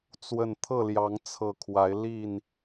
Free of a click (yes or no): yes